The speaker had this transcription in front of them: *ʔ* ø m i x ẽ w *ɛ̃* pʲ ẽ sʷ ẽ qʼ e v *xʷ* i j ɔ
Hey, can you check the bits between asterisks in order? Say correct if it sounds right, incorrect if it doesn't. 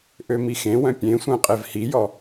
correct, incorrect, incorrect

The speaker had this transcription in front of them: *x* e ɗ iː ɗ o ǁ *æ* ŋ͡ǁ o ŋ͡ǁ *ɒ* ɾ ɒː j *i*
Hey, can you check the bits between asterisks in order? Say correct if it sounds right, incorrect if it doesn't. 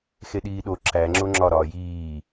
correct, correct, correct, incorrect

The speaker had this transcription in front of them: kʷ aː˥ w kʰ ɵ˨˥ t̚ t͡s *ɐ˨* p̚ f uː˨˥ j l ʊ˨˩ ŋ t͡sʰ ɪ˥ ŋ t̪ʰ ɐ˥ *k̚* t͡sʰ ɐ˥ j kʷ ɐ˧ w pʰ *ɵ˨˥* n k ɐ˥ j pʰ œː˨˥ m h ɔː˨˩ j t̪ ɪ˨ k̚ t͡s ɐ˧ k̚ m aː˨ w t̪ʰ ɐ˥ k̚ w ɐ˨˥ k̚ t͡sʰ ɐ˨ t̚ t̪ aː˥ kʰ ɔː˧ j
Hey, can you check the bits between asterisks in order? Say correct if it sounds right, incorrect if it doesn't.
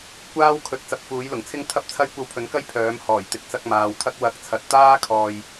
incorrect, incorrect, correct

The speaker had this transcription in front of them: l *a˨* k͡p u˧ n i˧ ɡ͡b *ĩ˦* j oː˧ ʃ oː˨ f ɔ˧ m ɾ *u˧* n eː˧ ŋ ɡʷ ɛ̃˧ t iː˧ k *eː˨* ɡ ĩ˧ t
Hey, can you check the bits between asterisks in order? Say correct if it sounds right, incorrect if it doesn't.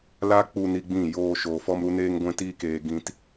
incorrect, incorrect, correct, correct

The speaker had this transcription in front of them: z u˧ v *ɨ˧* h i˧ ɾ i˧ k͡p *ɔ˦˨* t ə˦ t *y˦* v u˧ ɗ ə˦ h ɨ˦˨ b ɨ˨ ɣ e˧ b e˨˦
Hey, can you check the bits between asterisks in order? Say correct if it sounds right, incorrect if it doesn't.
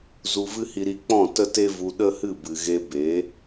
incorrect, incorrect, incorrect

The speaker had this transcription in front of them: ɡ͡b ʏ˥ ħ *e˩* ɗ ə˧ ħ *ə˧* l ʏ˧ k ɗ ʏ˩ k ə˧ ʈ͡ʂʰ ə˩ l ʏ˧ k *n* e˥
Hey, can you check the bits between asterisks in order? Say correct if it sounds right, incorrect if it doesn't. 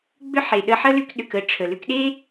correct, incorrect, incorrect

